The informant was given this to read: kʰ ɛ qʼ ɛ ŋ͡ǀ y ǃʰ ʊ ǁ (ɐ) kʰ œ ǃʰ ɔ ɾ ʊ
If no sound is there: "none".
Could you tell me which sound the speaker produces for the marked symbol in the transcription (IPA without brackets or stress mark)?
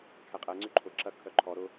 ɐ